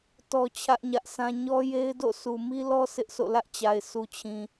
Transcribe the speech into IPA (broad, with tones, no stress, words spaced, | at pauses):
tɔ˦t͡ɕʰä˦ʔɲä˦ʔsʰã˦ ɲɔ˦je˦ɪ̯do̰˦˨ su˨mi˦lɔ˦ sɪ˦ʔsʰo̰˦˨lä˦ʔt͡ɕa˨ɪ̯ sʰu˨t͡ɕʰĩ˨